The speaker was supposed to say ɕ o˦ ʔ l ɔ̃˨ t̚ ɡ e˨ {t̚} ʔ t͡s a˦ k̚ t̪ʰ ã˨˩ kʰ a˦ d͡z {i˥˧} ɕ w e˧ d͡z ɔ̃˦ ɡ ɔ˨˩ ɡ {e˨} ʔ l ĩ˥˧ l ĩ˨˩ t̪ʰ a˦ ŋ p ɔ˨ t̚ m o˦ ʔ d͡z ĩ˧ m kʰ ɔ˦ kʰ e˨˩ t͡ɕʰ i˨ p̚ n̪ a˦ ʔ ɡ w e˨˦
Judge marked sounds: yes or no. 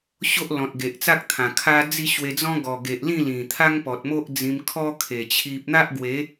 no, yes, yes

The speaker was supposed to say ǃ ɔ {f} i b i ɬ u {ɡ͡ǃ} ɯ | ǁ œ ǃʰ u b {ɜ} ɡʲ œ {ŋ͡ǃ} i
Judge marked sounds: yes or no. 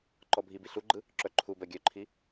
no, yes, yes, no

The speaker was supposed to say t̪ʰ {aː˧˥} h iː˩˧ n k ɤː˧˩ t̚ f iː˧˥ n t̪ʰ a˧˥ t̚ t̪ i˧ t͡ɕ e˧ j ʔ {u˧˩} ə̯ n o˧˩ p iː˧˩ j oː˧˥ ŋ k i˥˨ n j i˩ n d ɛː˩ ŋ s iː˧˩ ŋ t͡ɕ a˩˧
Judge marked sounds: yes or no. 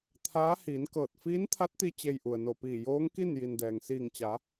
yes, no

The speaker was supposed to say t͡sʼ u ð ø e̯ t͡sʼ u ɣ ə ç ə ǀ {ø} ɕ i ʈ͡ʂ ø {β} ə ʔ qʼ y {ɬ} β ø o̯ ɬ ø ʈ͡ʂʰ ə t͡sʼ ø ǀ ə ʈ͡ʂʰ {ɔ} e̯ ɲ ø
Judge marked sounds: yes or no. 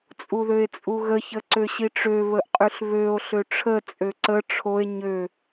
yes, yes, yes, no

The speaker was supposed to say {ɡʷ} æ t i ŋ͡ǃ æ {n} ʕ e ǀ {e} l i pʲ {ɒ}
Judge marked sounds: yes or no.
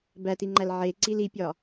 no, no, no, yes

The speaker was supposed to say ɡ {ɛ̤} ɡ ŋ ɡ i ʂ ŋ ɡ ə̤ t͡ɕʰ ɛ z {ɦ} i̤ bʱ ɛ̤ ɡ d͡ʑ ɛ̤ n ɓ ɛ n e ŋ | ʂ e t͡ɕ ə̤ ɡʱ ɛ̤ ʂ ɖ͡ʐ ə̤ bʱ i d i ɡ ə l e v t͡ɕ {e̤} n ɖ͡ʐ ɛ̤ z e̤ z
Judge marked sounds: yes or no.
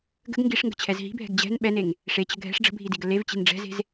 no, yes, no

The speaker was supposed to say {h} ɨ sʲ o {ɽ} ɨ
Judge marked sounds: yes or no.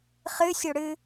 no, yes

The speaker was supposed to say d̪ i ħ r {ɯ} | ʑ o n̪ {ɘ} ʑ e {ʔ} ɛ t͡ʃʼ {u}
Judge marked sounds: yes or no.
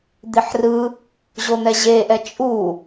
yes, no, yes, yes

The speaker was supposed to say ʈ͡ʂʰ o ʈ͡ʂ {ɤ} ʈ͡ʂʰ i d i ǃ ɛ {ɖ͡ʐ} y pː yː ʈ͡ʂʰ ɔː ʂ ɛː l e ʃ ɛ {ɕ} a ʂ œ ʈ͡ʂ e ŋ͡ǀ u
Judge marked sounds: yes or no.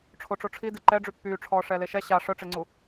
no, yes, yes

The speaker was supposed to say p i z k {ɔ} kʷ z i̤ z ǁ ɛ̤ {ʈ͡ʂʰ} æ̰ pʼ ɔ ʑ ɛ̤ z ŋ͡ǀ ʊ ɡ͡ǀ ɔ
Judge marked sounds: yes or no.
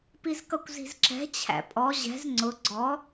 no, no

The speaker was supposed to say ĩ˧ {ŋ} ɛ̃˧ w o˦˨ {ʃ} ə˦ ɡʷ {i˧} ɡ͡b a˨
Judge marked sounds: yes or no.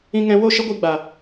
yes, yes, yes

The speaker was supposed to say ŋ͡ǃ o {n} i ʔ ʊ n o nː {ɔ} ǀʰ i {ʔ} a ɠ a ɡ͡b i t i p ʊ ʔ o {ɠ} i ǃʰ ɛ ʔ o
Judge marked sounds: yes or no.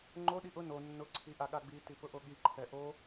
no, no, yes, yes

